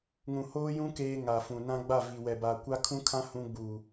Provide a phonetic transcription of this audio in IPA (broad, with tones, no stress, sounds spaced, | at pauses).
ŋ ũ˨ h oː˦ j ũ˦ k eː˦ ŋ a˨ f ũ˨ n ã˦ ɡ͡b a˦˨ v i˨ w ɛ˨ b a˨ kʷ a˦ kʰ ũ˦ kʰ ã˦ h ũ˦ ɡ͡b uː˨